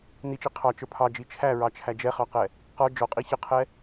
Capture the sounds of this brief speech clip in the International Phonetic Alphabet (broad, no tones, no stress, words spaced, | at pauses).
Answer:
nit͡ʃi qʰɑt͡ʃə˞ pʰɑd͡ʒi t͡ʃʰæɹɑt͡ʃʰæ d͡ʒɛχɑqɛ | qɔ d͡ʒɔqʼi çəqʰɛ